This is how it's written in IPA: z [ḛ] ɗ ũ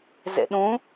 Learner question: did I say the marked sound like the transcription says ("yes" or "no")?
yes